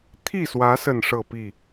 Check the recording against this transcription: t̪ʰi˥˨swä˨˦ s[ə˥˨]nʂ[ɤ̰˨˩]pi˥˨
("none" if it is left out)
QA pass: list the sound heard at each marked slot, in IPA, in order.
ə˥˨, ɤ˥˨

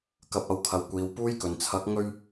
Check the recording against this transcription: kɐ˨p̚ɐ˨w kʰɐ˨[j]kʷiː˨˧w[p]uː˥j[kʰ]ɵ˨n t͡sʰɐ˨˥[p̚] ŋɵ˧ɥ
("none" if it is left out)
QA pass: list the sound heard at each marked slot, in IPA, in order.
w, p, k, k̚

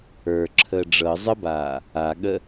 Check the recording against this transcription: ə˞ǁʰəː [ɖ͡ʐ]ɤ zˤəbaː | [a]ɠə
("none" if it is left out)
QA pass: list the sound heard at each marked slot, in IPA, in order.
ɖ͡ʐ, a

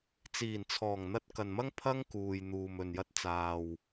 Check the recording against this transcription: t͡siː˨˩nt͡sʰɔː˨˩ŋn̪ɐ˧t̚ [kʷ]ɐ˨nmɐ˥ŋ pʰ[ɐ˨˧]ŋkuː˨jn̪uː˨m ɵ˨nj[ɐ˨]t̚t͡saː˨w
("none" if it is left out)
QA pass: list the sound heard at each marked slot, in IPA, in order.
k, ɐ˥, ɐ˧

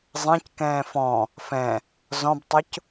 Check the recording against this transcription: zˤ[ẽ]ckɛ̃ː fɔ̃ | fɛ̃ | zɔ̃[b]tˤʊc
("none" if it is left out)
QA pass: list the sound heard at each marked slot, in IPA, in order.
ẽ, b

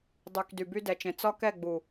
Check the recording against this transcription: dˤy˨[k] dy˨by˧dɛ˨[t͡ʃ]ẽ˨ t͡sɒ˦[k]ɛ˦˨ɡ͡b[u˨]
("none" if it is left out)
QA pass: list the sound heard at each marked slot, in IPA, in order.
k, t͡ʃ, k, u˨

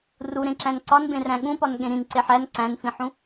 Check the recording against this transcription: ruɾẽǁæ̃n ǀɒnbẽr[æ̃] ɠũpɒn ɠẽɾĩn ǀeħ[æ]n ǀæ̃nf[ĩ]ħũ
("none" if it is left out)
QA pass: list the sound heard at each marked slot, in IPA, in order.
æ̃, æ, ĩ

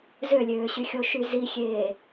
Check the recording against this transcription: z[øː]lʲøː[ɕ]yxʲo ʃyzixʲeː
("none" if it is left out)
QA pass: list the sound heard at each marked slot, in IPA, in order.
ø, ɕ

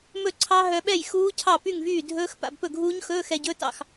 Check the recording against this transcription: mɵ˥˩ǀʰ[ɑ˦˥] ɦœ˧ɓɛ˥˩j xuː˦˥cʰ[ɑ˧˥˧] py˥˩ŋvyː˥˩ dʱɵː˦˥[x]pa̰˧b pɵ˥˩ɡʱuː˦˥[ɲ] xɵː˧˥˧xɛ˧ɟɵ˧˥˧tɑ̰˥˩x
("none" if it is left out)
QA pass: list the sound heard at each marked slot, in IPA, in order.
ɑ˦˥, ɑ˥˩, x, ɲ

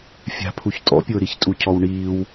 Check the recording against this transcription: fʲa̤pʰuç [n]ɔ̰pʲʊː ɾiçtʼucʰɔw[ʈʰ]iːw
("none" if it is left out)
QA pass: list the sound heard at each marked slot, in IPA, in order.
tʼ, ɳ

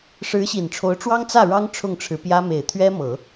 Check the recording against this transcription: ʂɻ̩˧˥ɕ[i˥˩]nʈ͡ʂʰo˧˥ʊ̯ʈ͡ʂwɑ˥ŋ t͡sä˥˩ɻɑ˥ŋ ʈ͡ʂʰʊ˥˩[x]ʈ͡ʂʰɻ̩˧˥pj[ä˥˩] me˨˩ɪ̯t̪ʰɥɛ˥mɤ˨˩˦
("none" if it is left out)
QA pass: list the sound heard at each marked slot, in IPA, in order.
i˨˩, ŋ, ä˥

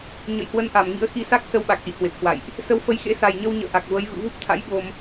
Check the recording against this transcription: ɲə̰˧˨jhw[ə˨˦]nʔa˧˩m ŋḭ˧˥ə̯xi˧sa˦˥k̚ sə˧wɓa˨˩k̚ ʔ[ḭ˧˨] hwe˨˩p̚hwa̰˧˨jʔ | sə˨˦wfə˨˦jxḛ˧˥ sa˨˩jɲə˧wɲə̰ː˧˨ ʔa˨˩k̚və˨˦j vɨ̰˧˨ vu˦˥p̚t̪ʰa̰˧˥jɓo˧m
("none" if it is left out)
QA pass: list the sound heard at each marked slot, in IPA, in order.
ə˨˦, ḭ˧˨

